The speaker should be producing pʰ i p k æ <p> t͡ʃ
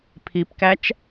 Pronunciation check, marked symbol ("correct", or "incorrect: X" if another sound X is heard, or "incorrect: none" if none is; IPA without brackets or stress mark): incorrect: none